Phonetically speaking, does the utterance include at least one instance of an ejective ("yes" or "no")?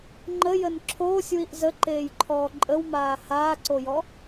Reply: yes